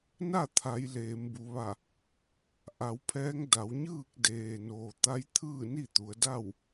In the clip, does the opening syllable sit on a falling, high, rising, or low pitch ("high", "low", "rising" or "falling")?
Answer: falling